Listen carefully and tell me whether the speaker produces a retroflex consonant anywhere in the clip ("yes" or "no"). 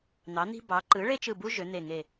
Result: yes